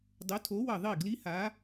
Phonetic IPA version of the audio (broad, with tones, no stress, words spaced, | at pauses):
dˤo˨˥tʰo˨˥wʌ˧˩ ðˤi˥˩ɡli˦˥ha˨˥